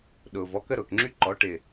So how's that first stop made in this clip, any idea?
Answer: implosive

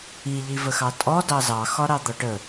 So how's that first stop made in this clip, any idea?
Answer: ejective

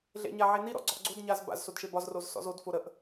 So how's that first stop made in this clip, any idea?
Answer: click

